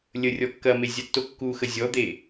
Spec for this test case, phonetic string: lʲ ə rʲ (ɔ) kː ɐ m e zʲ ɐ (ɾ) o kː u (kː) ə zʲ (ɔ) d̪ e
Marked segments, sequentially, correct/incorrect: correct, incorrect, incorrect, correct

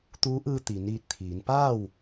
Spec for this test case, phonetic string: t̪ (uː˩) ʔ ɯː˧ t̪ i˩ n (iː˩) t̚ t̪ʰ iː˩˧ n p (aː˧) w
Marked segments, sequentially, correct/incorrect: incorrect, incorrect, incorrect

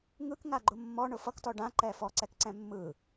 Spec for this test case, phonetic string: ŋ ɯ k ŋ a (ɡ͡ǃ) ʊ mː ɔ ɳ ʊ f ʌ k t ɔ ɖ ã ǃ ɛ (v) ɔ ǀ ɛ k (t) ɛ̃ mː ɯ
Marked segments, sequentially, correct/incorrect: correct, incorrect, incorrect

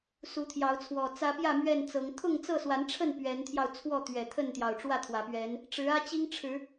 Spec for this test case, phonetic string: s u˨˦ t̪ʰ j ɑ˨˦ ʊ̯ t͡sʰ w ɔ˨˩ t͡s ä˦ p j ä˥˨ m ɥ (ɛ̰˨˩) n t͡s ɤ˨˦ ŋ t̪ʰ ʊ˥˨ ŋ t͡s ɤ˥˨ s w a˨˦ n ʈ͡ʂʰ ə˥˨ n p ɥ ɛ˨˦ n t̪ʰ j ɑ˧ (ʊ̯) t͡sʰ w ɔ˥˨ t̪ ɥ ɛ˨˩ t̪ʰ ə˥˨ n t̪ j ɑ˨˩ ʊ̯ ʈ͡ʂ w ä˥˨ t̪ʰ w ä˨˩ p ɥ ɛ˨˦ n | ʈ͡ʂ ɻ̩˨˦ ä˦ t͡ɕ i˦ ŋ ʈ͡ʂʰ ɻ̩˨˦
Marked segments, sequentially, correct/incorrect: incorrect, correct

